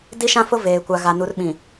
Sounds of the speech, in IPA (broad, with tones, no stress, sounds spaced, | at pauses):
d i˦ ʃ ã˦ f ʊ˦ v eː˨ kʷ a˨ ɣ a˨ n u˨ r ɓ ĩ˨